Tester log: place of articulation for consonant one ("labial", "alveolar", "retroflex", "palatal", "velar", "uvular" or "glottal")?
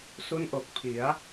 alveolar